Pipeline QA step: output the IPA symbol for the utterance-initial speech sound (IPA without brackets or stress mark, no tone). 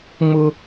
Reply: ŋ͡m